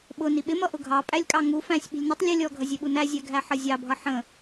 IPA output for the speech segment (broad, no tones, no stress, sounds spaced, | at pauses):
ɓ ʊ n i ɓ ɪ m ʌ ʔ ʊ ɡʱ ɑ pʼ æ lʲ kʼ ɑ ŋ u f æ̃ sʲ ɓ i̤ lʲ n ɪ tˤ lʲ ə lʲ ɔ ɡʱ ʌ zʲ ɛ ɓ u n æ zʲ æ ɡʱ æ ħ ʌ zʲ ɑ bʱ ʌ ħ ə̃